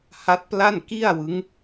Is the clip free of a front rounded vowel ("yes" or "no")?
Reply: yes